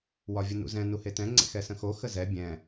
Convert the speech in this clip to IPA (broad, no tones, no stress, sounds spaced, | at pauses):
w ɒ vʲ ə n ṵ z ɛ̃ n u h e t ɛ̃ ŋ͡ǀ ḛ x ɛ s ə̃ x o x ə z ɛ bʲ ɛ̃